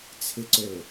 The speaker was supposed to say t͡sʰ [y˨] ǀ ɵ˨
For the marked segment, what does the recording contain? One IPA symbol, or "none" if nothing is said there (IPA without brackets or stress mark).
ɪ˨